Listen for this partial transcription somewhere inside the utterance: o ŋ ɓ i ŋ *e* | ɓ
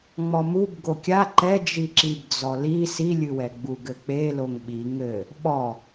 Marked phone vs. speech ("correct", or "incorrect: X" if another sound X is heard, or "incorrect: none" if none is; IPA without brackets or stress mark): incorrect: ɘ